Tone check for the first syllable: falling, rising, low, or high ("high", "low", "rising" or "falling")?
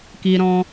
high